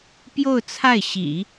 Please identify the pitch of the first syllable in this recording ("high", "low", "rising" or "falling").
falling